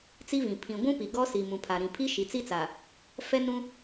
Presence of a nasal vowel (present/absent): present